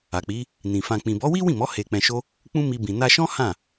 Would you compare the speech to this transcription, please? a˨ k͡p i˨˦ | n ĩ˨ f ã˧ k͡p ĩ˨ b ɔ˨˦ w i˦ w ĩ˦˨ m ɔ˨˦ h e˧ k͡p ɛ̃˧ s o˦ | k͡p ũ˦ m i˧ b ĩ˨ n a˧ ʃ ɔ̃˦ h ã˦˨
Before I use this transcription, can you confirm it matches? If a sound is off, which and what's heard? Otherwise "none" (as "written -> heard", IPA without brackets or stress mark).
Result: s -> ʃ